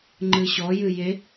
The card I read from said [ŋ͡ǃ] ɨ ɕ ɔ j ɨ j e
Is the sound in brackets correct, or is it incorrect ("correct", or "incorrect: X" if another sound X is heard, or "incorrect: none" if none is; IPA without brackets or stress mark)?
correct